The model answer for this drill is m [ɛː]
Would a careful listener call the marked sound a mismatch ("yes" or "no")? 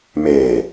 yes